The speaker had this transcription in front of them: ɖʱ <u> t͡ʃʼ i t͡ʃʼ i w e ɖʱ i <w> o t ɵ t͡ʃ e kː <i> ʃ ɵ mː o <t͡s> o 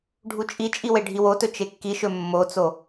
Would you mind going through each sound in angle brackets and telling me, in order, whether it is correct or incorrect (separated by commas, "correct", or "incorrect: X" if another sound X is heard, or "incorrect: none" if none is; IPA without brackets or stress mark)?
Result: correct, correct, correct, correct